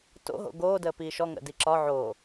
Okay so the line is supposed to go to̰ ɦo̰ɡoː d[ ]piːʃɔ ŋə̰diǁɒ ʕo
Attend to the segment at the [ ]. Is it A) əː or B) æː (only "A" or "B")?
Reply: A